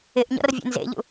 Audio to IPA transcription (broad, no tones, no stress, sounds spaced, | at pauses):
ɪ ʔ ɲ ɔ̰ r vʲ ḛ n z ḛ ʎ ṵ